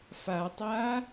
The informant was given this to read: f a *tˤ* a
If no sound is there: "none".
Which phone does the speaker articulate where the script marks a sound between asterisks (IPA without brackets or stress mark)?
tˤ